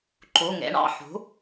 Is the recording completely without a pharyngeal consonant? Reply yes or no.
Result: no